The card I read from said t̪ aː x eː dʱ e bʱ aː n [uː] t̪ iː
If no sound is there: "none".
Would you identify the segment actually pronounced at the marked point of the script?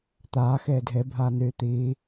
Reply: yː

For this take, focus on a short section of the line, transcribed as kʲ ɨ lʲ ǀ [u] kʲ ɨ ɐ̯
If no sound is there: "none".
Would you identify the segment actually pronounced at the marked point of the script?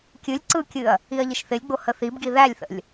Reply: ɯ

